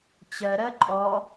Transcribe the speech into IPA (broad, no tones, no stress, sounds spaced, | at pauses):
t͡ɕ ɜ ɾ ɜ ǃʼ ɔ